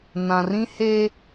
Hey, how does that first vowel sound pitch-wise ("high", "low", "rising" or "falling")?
low